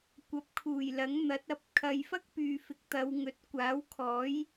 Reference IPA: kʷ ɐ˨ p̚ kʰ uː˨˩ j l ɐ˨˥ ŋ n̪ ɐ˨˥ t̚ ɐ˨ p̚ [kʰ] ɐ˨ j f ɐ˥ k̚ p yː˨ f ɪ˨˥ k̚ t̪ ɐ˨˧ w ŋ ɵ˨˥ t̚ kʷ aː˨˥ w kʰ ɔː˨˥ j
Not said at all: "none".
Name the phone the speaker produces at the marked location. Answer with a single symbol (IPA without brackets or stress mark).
kʰ